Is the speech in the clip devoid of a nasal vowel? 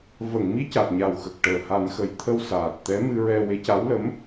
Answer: yes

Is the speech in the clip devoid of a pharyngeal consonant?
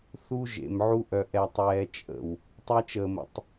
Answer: no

